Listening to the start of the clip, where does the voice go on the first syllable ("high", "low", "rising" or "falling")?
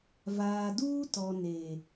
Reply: low